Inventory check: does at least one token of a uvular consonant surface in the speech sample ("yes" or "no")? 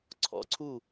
no